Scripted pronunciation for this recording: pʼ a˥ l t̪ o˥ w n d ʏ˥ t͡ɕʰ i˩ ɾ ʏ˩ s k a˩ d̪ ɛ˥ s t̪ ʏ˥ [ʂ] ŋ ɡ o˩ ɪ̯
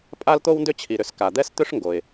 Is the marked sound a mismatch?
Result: no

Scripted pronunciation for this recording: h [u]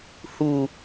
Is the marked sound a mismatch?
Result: no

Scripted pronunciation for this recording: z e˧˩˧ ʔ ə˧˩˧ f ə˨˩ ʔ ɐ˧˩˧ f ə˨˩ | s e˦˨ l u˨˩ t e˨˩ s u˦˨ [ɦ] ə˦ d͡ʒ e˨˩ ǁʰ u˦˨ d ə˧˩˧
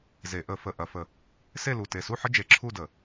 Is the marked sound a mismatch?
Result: yes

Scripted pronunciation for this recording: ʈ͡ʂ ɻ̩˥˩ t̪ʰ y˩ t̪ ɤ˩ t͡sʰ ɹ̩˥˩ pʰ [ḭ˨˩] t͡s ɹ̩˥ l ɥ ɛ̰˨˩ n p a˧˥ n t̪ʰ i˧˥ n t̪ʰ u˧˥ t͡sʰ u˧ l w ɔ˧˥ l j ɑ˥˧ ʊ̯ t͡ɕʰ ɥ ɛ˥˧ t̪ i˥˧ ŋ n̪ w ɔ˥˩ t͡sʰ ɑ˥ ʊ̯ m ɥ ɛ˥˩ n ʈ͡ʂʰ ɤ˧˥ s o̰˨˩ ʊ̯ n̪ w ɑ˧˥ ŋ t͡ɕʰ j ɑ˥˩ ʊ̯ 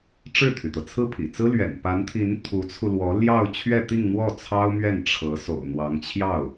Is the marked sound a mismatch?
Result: no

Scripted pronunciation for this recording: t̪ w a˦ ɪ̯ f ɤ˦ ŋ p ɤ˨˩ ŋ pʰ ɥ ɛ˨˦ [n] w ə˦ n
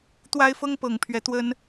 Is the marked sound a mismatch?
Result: yes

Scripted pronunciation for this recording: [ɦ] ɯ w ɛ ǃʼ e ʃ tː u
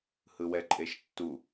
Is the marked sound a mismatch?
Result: yes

